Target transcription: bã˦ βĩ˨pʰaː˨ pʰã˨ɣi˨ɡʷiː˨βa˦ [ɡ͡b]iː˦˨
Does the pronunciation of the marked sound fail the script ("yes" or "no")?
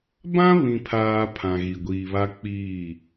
yes